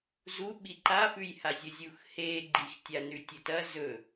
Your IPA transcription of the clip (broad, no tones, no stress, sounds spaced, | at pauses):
z u ɓ i ǃ a f ʉ j h a zʲ ɵ zʲ u x h e ɡ͡ǃ i x tʲ a n ʉ tʲ ɵ t ɐ z ɵ